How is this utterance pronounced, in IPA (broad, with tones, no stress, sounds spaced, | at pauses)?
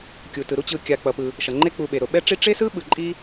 kʲ u˩ t ɯ˩ ɾ u˦ t͡ɕ ɯ˨ kʲ a˨ k͡p ʌ˨ p ɯ˨ | ʃ ʌ˩ ŋ͡ǃ e˦ k͡p u˨ ɓ e˩ ɾ o˨ ɓ ɛ˥ ʈ͡ʂ i˥ ʈ͡ʂ e˥ s ɯ˥ ɓ ɯ˨ ǃʼ i˥